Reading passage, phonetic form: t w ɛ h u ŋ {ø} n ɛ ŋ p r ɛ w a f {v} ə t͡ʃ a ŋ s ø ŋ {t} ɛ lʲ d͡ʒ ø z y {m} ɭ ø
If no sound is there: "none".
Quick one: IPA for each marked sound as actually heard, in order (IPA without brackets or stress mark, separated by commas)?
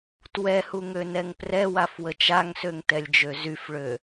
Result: ø, w, t, f